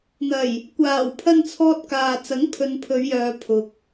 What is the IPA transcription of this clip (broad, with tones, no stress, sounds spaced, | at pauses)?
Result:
n̪ ɐ˨˩ j | kʷ aː˨˩ w pʰ ɐ˧ n t͡sʰ ɔː˥ t̚ k aː˧ t͡s ɐ˨˥ ŋ pʰ ɵ˨ n pʰ ɵ˨˧ ɥ j œː˨ pʰ ʊ˨ k̚